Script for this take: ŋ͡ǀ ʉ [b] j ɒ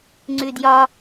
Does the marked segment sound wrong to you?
yes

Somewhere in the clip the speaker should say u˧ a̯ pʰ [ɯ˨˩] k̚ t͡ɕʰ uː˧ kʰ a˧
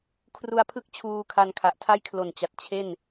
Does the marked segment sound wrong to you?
yes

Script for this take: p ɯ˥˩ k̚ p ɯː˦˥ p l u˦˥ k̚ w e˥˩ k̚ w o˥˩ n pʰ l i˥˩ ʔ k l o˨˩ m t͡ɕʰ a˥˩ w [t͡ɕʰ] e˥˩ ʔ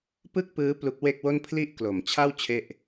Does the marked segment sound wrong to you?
no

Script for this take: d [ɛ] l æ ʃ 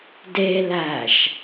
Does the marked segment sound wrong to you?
yes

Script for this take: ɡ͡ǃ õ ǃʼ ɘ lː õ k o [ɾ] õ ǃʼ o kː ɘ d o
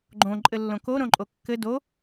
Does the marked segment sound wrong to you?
no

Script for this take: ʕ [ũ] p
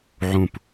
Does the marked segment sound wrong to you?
no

